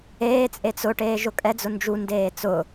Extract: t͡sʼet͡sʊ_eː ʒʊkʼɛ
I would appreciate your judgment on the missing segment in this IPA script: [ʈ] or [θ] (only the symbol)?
ʈ